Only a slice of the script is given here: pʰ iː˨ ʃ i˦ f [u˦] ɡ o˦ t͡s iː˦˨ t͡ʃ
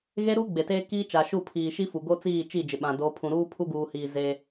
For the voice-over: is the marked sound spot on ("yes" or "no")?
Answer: no